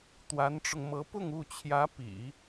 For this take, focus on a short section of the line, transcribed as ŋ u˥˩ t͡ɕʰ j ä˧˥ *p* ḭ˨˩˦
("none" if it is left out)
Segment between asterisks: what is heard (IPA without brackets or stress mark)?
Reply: p